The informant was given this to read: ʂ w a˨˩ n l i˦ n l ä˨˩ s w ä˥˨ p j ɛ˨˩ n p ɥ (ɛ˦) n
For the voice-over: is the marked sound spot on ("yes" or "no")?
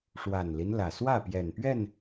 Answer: no